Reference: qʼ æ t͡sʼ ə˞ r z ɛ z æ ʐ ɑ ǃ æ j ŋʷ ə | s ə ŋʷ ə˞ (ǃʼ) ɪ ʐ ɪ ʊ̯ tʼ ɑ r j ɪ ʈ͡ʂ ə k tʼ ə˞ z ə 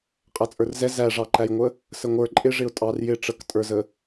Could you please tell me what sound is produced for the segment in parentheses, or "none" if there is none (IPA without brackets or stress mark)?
ǃʼ